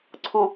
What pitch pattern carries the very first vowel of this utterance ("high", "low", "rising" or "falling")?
low